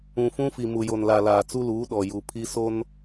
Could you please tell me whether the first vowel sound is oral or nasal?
nasal